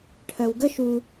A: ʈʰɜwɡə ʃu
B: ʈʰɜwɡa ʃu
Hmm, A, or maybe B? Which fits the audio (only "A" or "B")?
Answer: A